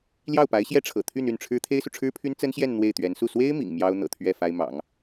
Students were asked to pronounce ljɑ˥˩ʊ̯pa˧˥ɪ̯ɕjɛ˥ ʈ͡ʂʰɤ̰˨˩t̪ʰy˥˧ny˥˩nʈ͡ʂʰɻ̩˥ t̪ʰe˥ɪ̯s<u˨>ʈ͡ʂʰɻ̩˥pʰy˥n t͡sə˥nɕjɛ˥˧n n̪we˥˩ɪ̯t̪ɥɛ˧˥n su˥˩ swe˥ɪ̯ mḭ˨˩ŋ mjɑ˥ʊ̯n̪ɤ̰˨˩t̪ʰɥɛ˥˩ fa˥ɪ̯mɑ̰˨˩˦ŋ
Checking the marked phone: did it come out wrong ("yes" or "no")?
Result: no